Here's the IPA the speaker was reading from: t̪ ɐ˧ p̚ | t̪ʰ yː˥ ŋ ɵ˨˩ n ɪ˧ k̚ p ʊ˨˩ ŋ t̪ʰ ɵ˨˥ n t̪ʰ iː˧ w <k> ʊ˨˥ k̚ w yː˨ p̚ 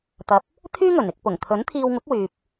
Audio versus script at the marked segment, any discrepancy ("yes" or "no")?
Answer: yes